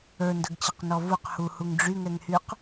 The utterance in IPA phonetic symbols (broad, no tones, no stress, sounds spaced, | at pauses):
ə˞ n d ə ɡ t͡ɕ ə q n ɔ v u q h u h u ŋ ɖ͡ʐ y ŋ ɛ ŋ h y q